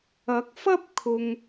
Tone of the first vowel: rising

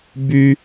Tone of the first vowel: high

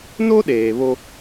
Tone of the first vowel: high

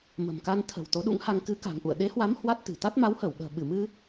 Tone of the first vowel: low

